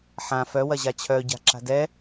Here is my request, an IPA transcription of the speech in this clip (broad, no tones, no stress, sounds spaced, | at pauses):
ħ ã f œ w ɐ ʑ a t͡ɕʰ œ ɟ a̤ ǁ a̤ d ɛ